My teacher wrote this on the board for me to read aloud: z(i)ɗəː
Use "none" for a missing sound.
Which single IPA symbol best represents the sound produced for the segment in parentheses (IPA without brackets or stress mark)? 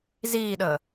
iː